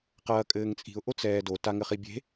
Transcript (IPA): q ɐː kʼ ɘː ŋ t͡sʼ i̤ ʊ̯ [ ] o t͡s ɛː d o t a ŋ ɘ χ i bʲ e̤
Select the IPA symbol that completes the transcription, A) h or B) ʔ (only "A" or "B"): B